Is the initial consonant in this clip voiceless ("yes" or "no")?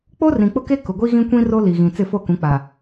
yes